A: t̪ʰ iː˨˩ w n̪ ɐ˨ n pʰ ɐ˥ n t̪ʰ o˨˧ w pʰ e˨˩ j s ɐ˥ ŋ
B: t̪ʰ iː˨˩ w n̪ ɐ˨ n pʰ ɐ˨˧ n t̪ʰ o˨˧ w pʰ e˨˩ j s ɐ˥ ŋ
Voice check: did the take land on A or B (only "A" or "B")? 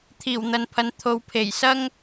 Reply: B